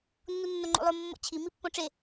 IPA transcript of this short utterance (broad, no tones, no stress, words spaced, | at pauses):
nːunːõŋ͡ǃo̰lˠo mːo̰t͡ɕʰi mipːõʈ͡ʂe